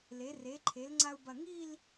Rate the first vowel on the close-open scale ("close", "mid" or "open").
mid